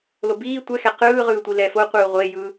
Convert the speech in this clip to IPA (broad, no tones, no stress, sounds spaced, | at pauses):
l o b iː tʷ ɛ x ɛ q ɯː ʁ ɯː tʷ i l ɛ f o qʷ ɯː ʁʷ e j ɯː